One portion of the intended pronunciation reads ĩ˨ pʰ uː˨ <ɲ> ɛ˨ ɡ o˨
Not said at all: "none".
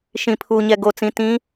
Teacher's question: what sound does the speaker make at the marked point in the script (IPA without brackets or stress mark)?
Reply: ɲ